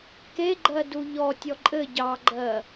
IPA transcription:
k e ɡ͡ǃ ɜ d u ʎ ɔ tʲ ɔ ǃʼ ɘ ɟ ɑ ɡ͡ǃ ɜ

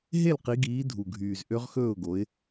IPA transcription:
ɦ e˥˨ l q i˨˦ ɡ iː˨˦ dʱ u˨˩ ɡʱ yː˨˩ z ʔ ø˦˥ ʁ x ɵː˥˨ ʊ̯ ɡ o˨˦ ɪ̯

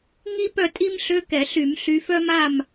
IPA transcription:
ŋ i˥ p œ˥˨ tʼ i˥ m ɬ ø˧˥˧ k ɛ˧˩˧ ɬ y˧˩˧ m ɬ y˨˦ f œ˥ m a˥˨ m

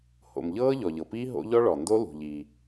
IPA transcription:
h o̰˩ m ʎ ɤː˦˥ ʎ ɔ˩ ʎ ɤ˩ p iː˦˥ ɦ o̰˦˥ ʎ ɔ˦˥ ɭ ɔ˩ n d o˦˥ l ṳ˩ ʎ i˩

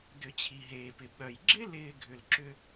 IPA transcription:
d ʏ˨˩˦ t͡ɕʰ i˩ ɦ eː˩ p ɪ˩ ɓ œ˩ j ɡ͡ǁ ɪ˥ l ɪː˥ ɡʱ ʏ˩ l ǁ ʏ˥

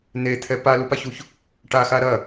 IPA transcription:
n̪ e t̪ʰ ɛ p a l u p a ç u ç | ʈ a x a ɾ ɐ

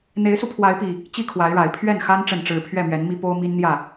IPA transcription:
n̪ e˨˦ ɪ̯ s u˧ pʰ w a˨˦ ɪ̯ p i˨˩ | t͡ɕ i˥˨ kʰ w a˨˦ ɪ̯ ɻ a˨˩ ɪ̯ pʰ ɥ ɛ˥˨ n x a˦ n ʈ͡ʂ ə˥˨ n ʈ͡ʂ ɻ̩˥˨ pʰ ɥ ɛ˥˨ m ɥ ɛ˨˦ n m i˦ p o˦ ʊ̯ m i˦ n n̪ j ä˥˨

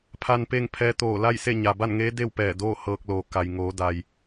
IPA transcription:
pʰ a˧ n p e˥˨ ŋ pʰ ɛː˧˥ t̪ oː˧˩ l a˥˨ j s e˥˨ ɲ a˩ b a˥˨ n ŋ eː˧˥ d e˥˨ w p ɛː˧˩ d oː˥˨ h ɤː˧ k̚ l oː˩ k a˩ j ŋ oː˩˧ d a˩ j

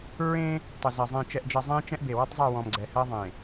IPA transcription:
ɹ ẽː˦ | tˤ ɘ˨ z ɜ˨ zˤ ẽ˨ t͡ʃ ɛ˨ ʔ d͡ʒ ɜ˨ zˤ ẽː˦ t͡ʃ ɛ̃˦ ʔ b e˨ w ʌ˦ tˤ zˤ ɛ˦˨ w ɔ̃˨ m ɡ͡ǀ ɛ˨ h ɜ˦ ðˤ ẽ˨

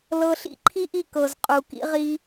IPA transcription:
l ɤ˧ ɬ ḭ˦ ǃʰ i˦ ʔ i˧ k ɤ˨ z qʼ u˨ k ḭ˦ ʁ i˦

